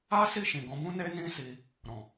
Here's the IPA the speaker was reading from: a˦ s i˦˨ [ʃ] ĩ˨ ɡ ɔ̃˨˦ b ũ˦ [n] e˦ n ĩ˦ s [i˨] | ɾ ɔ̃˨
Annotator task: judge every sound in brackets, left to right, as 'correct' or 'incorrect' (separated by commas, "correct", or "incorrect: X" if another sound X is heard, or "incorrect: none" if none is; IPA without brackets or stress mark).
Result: correct, correct, incorrect: i˧